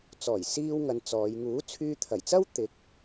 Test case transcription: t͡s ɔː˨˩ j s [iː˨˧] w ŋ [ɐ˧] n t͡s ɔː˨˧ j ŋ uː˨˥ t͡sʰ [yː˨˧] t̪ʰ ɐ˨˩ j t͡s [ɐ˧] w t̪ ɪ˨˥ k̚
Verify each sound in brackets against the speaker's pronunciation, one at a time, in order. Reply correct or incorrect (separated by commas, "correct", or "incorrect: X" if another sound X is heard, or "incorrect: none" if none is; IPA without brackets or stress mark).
incorrect: iː˥, correct, incorrect: yː˧, incorrect: ɐ˥